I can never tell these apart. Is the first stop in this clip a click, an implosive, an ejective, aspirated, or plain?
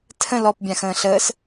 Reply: aspirated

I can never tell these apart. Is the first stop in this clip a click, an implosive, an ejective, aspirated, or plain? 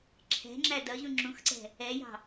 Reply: click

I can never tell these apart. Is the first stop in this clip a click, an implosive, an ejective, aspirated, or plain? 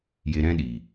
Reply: implosive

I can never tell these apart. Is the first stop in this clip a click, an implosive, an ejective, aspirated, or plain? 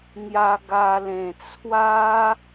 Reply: plain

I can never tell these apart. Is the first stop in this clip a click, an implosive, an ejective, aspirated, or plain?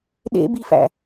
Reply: implosive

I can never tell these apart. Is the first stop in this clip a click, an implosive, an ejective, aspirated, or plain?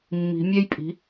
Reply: ejective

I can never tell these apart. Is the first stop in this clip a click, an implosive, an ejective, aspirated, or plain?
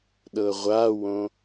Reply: implosive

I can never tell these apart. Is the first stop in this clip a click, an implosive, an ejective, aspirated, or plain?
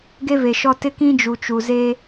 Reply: plain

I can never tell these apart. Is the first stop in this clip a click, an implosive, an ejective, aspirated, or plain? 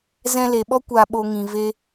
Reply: implosive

